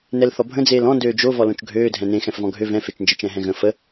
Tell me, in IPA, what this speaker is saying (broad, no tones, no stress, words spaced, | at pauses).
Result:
nɛlθɔbʱə̃ d͡zeːlɔ̃ndøː d͡ʒo vɔlõt͡ʃɡʱøː dʱɛ̃nẽ xɛ̃fvɔ̃ɡʱø vɛ̃fet͡ʃnd͡ʒə t͡ʃɛ̃ɦɛ̃ɣə̃ fə